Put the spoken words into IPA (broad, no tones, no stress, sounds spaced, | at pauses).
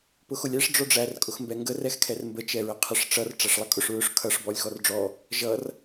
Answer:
p ʊ x ʊ lʲ æ ʂ ɖ͡ʐ ɔ ɖ͡ʐ æ r kʼ ʊ x m b ɛ ŋ ɡ ə r ɛ x kʰ ɛ r m b ə t͡ʃ ɛ ɹ ə qʰ ə ʂ ʈ͡ʂ ʌ r ʈ͡ʂ æ ʂ lˠ ʌ kʼ ʊ ʂ ɹ ʊ ʂ kʰ ʌ ʂ b ɔ lʲ x ɔ r ɖ͡ʐ ɔ | ʒ ʌ r